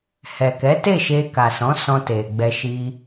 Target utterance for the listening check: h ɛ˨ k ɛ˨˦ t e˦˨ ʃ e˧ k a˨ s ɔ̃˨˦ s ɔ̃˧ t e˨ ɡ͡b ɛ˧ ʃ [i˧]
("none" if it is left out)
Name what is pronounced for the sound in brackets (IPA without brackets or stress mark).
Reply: i˧